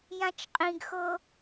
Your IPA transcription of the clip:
j ã t͡ʃ qʼ ĩ ɡ x ɤ

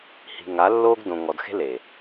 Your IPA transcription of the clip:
h i̤˨ ŋ a˨˦ lː oː˦ ɡ d õ˨ ŋ ɔ˨ d x e̤˦ l e˨

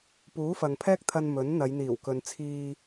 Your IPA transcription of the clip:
p uː˨˥ f ɐ˨ ŋ pʰ ɛː˥ k̚ t̪ʰ ɐ˧ n m ɵ˨˥ n n̪ ɐ˨˧ j n̪ iː˨˩ w k ɵ˨ n t͡sʰ iː˧

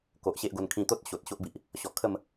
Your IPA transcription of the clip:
k o˨ ʔ ɕ e˦ ʔ ɡ o˧ n kʰ ĩ˧ t̪ o˦ t̚ ɕ o˨ t̚ ɕ o˦ ʔ b i˨ ʔ | ɕ ɔ˨˩ kʰ ə˥˧ m

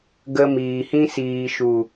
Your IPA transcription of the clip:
ɡ ə˧ m iː˨ h ĩ˦ s iː˨ ʃ u˨

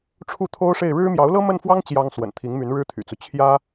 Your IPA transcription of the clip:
ʈ͡ʂʰ u˥˩ t̪ʰ o˥ ʊ̯ ʂ e˥˩ ɪ̯ ɻ ɻ̩˥ m j ɑ˧˥ ʊ̯ l ɤ˥ m ə˥˩ n f w ɑ˥ ŋ t͡ɕ j ɑ˥ ŋ s w ə̰˨˩ n t̪ʰ i˧˥ ŋ m y˧˥ n ɻ ɻ̩˥ t̪ʰ y̰˨˩ t͡s u˦ t͡ɕʰ j ä˥

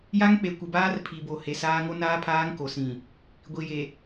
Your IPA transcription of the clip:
j a˦ ŋ k͡p e˨ kʷ ɪ˨ b aː˦ r pʰ i˨ b o˨ h e˨ s aː˦ ŋ o˦ n aː˦ pʰ aː˦ ŋ k o˨ s ĩ˨ | ɡʷ i˨ j e˨

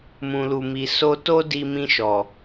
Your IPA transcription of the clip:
m ũ˨ l u˨ m i˨ s o˧ t o˦ d i˧ m ĩ˧ ʃ ɔ˨

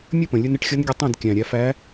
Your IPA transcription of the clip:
mʲ ə˥˩ p ə̃˩ lʲ ɵ˧ n ɪ˧ ʈ xʲ ʌ˧˥ n ɡʲ ə˧ tˤ ẽ˥˩ d kʲ æ̃˩ ɾʲ æ˧ f æ˧˥

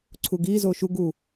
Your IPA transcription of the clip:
ǀʰ u ɡ iː z oː ʃ u ɡ u

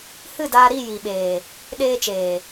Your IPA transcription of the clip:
h ɨ˦˨ d aː˧ ɾ i˦˨ j i˨ ɓ eː˨ | ɗ eː˧ t͡ʃ eː˨

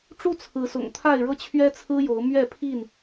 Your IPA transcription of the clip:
ʈ͡ʂ u˥˨ t͡sʰ ɹ̩˨˦ s ʊ̰˨˩ ŋ t̪ʰ a˥˨ ɪ̯ ɻ ɤ˦ t͡ɕʰ ɥ ɛ˦ t͡sʰ ɹ̩˦ j o˨˦ ʊ̯ m ɥ ɛ˥˨ pʰ i˥˨ n

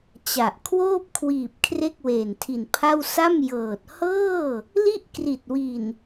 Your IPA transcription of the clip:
t͡ɕ a˨˩ ʔ kʰ w oː˥˩ p̚ kʰ w iː˨˩ p̚ kʰ r e˥˩ k̚ w eː˨˩ n tʰ i˨˩ n pʰ a˥˩ w s a˥˩ m j ɤː˨˩ t̚ h ɤː˥˩ | l i˥˩ ʔ k r i˨˩ t̚ w i˨˩ n

